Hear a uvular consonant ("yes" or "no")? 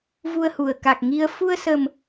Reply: no